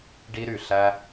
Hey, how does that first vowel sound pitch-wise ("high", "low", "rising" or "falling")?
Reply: high